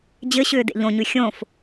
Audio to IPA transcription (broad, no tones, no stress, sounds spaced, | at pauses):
d͡ʑ ɘ ɕ ʏː d ḛ ʎ õ ɲ ʉ xʲ õ f